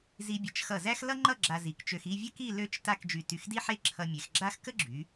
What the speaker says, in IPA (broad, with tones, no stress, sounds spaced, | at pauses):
z i˧ bʲ ə˩˧ t͡ʃ x ʌ˧˩ z æ˥ x l ʌ˥ ŋ͡ǃ ʌ˥˧ ɡ͡ǁ a˧ z i˩˧ k t͡ʃ ø˧ x i˥˧ vʲ ə˥ k i˥˧ l ø˥˧ t͡ʃ t a˥˧ k d͡ʒ y˧˩ t y˧˩ x d i˥ ħ e˥˧ ǁʰ ʌ˧ mʲ e˩˧ x ɡ͡ǁ a˥ x k ə˥ ɡ͡ǁ y˩˧